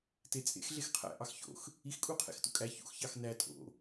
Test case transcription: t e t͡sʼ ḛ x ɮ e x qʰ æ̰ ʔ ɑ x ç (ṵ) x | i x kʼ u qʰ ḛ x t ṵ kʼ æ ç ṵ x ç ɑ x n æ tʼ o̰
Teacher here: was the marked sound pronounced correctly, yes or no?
no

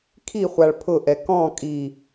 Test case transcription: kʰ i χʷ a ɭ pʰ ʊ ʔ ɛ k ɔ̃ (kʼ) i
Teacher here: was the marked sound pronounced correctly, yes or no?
yes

